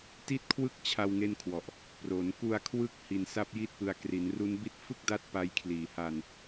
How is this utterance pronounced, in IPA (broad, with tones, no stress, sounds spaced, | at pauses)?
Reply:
t i˥˩ t̚ kʰ w ɯ˥˩ k̚ t͡ɕʰ a˧ w ŋ e˥˩ n kʰ w ɔ˨˩ ʔ | p r o˩˦ n k u˧ a̯ kʰ w ɯ˦˥ k̚ h i˧ n s a˥˩ p̚ j i˥˩ t̚ p ɯ˧ a̯ k r i˩˦ n r u˦˥ n b i˦˥ t̚ f ɯ˥˩ k̚ d a˦˥ t̚ p a˦˥ j kʰ l iː˨˩ h a˧ n